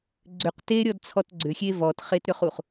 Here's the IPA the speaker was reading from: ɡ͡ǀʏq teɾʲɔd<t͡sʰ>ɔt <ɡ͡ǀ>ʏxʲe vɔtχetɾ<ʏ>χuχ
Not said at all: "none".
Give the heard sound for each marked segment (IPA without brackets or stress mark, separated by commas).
t͡sʰ, ɡ͡ǀ, ʏ